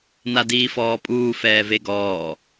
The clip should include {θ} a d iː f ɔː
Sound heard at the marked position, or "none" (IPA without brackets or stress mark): n